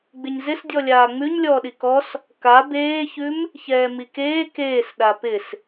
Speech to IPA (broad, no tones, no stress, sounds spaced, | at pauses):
ɡ͡b ɪ ɲ z ɪ s dʲ ɔ lʲ aː ŋ͡m ʉ ɲ lʲ ɔː ɗ i k ɔ s | k a b eː ç ʉ m | ç ɛː m i k eː k eː s ɗ a p ɪ s